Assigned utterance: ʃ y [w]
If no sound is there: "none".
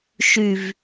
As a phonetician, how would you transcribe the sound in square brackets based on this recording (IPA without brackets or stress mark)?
v